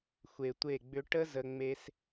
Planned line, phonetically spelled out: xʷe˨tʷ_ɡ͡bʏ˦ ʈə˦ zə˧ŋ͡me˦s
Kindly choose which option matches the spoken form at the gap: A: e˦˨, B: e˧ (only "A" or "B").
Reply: A